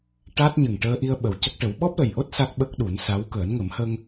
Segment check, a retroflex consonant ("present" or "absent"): present